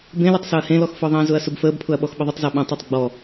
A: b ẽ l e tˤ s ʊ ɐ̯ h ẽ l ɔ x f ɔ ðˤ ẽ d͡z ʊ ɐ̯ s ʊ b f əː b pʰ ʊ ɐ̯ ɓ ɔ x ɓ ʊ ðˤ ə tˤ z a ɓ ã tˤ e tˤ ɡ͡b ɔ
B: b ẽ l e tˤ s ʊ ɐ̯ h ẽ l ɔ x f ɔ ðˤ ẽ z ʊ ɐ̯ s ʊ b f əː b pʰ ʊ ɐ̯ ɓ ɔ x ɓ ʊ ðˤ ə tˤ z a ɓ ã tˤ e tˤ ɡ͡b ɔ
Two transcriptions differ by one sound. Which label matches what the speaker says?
B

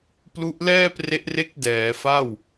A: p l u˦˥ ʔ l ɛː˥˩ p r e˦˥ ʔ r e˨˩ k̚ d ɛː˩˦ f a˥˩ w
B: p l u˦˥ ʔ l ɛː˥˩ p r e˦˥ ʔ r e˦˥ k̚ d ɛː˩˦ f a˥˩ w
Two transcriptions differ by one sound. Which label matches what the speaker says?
B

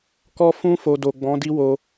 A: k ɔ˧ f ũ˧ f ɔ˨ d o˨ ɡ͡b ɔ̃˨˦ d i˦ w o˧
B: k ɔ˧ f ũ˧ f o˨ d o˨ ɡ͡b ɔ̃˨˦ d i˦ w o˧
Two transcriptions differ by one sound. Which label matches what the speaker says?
B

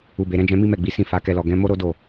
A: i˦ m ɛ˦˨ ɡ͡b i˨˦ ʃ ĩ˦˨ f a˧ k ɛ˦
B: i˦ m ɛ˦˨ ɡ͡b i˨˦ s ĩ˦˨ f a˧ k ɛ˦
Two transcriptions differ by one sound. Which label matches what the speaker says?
B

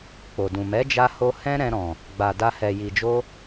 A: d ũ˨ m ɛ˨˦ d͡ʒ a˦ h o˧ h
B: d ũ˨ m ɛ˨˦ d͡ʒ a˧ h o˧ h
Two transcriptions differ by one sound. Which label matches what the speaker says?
B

